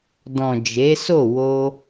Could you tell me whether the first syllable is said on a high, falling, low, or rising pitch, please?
low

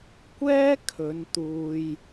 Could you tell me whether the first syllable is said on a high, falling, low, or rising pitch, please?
high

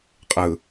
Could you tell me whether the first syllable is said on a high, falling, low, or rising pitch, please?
low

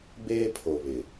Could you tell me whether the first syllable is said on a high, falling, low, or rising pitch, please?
high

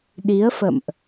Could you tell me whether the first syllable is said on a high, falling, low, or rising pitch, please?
rising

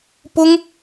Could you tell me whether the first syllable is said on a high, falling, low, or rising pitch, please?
high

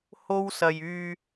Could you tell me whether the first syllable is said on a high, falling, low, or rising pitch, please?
high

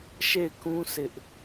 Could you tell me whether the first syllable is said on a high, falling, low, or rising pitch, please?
falling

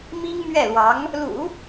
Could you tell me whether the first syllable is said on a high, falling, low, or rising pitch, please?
high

